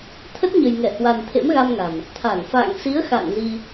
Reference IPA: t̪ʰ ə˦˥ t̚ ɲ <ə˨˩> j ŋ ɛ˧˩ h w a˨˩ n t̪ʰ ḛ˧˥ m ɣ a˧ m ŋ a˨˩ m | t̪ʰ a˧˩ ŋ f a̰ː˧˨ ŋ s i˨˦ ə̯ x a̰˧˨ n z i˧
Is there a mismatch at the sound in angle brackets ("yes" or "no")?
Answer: no